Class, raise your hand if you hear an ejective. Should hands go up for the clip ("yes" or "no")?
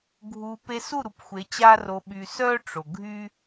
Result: no